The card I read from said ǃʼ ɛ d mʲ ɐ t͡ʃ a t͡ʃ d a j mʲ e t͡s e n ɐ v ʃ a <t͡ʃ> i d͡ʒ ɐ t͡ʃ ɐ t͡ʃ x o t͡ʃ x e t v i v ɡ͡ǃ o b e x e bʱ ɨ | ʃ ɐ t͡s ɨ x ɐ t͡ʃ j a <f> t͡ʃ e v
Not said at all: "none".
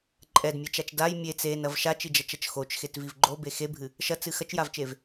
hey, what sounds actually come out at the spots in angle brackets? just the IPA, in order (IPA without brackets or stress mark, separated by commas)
t͡ʃ, v